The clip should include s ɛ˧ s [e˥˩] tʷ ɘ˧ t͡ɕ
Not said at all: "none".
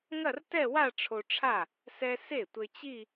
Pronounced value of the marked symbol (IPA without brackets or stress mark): e˥˩